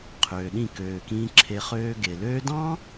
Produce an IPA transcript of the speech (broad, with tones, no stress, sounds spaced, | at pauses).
qʰ øː˨ ɗ ĩ˦˨ k øː˨ k ĩː˧ ǁʰ e˧ χ øː˧ ɡ e˨ l øː˧ d ɑ̃˦